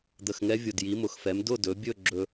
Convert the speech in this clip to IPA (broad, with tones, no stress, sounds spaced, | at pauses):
d̪ ə˨˩ x ŋ ɛ˧˥ vʲ ʊ˨˩ d j i˩˥ m ʊ˨˩ x f ɛ˩˥ m d ʊ˥˨ d ɵ˩˥ bʲ ɵ˥˨ ɡ͡ǁ ɵ˧